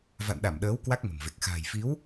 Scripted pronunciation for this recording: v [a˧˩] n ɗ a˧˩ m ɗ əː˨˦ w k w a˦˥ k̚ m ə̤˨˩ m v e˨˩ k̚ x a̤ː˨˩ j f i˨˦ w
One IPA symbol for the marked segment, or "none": a̰˧˨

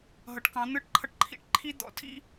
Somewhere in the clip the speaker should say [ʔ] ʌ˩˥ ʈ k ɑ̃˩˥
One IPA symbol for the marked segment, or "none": ɦ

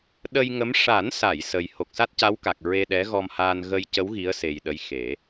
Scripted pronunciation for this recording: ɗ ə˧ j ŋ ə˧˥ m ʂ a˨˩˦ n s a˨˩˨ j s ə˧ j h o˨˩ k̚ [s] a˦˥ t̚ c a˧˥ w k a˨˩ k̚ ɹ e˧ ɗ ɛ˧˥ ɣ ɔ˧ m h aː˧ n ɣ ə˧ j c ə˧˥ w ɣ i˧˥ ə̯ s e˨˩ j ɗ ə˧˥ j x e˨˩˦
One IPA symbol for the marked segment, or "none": s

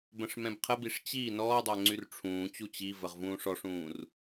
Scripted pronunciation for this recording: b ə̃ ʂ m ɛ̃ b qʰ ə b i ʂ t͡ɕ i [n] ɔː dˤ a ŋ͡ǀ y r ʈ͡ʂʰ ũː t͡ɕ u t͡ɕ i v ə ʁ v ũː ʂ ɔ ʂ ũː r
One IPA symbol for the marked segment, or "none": n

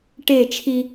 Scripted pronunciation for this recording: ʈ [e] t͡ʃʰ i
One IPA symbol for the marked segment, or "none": e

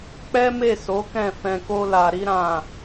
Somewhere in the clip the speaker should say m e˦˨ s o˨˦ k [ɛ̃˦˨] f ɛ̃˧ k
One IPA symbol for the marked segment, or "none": ɛ̃˦˨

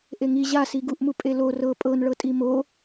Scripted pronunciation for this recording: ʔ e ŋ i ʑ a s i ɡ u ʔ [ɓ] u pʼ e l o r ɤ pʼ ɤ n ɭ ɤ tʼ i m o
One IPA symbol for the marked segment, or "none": m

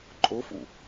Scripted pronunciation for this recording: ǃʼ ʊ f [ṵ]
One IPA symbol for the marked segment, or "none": ṵ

